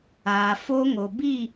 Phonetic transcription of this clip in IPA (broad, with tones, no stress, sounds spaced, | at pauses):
aː˨ f o˦ ŋ o˨ b i˦˨